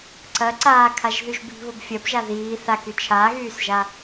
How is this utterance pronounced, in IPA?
ǀɐ ǀaːkʰaʒðyʒ bi̤βʊb fʲɐbʒa ðiː θaky t͡ʃʰaɣyːsʒa

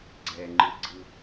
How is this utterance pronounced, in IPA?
ɡ͡ǀɛŋ͡ǃɯɡ͡ǀɯ

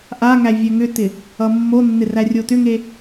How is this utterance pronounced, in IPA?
ʔaŋæ vʲɛŋʏtɪ | ʌmːonːɪ rærʲotʏŋe

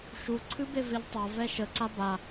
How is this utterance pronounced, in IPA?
ʃu ǀʰɨbeveʎtˤa vɛʃəǀa ba

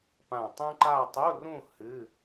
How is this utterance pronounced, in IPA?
pã˧˩tˤũ˥ǃa˥˧ tˤu˧˥˧rũ˥˧ hɨ˧˥˧

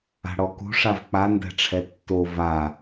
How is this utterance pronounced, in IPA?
a̤ɽɔkṳ ʂavk͡pandɛ̤ʈ͡ʂʰɛ tːo va

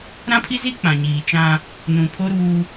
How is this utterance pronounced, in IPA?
ɾã˦pʰi˦zi˦ k͡pã˨ɲiː˨t͡ʃã˦ | nũ˨pʰo˦ɾuː˦

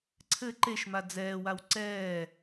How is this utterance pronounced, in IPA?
ǀʰɘ ǃeʃma d͡zɛːwaw ǀɛː

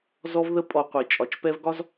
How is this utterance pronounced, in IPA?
zɔ˦vðə˦ pʼɔ˨qʷi˩t͡ʃʼɒ˨t͡ʃ pɛ˦vɡɒ˥z

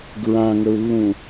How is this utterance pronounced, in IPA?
ɡɹãŋəu̯lːũ

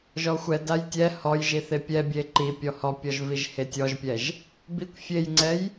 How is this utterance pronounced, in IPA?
ʒɔxʷɛdaj tʲɛ hɔjʒi θepʲɛbʲe ǃi pʲɔhɔpʲɔʒ viʒhetʲɔʒpʲɛʒ | bikʷ fʲejŋ͡ǀɛj

